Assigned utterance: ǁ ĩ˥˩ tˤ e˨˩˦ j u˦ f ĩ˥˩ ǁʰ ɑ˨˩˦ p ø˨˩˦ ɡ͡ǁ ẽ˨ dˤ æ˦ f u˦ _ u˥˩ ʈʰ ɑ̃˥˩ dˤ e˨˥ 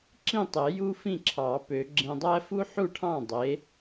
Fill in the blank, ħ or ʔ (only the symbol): ħ